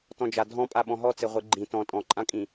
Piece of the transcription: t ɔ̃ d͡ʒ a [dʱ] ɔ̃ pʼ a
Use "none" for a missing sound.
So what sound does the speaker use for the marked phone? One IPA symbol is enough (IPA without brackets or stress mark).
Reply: dʱ